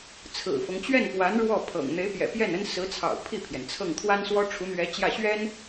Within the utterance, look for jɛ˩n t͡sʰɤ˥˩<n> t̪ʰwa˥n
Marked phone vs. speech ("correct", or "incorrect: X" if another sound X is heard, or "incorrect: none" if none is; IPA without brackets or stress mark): incorrect: ŋ